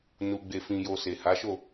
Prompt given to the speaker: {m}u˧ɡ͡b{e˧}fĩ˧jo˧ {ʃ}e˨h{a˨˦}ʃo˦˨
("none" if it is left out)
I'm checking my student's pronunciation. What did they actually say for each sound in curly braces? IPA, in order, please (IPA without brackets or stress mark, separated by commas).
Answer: n, e˧, s, a˨˦